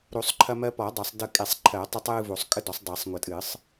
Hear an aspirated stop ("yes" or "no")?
yes